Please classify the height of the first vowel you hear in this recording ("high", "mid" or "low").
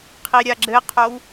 high